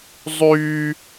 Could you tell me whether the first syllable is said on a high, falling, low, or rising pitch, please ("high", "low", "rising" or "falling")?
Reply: high